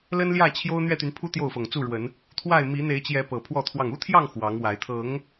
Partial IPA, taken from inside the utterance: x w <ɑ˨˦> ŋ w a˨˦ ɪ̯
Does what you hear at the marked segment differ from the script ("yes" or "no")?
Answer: no